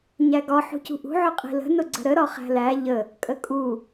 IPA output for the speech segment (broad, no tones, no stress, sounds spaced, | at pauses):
ɲ æ ɡ ɒ ħ ṳ c ṳ ʔ ṳ ʕ ʊ qʼ i̤ l ə̤ n ʊ ɡ͡ǀ ə̤ ɾ ə ɾ ɒ χ æ̤ l æ ʎ ə | kʼ ə kʼ u